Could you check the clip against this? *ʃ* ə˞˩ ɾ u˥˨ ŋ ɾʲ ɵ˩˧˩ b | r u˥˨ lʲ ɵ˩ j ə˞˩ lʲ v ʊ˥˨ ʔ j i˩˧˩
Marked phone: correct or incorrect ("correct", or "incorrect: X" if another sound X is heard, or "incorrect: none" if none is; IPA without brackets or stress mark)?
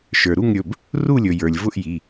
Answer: correct